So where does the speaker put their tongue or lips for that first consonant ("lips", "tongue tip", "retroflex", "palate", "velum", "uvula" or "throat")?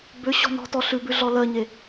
lips